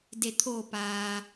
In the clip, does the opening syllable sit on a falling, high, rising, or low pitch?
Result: low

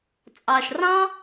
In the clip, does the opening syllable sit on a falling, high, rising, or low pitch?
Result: low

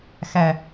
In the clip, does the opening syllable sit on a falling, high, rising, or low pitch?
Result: low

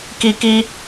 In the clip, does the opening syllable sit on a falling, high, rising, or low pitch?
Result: high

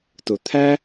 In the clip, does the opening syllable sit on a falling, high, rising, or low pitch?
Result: low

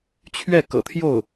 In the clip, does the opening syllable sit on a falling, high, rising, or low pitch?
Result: falling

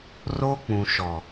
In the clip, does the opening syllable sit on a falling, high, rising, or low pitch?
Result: high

